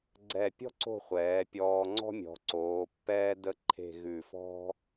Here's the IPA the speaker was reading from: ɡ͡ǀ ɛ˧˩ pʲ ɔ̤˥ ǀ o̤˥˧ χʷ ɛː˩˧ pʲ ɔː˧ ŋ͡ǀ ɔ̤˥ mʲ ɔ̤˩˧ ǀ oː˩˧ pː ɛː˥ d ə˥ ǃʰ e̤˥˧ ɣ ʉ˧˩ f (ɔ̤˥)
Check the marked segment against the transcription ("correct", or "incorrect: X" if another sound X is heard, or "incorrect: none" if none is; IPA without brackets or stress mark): correct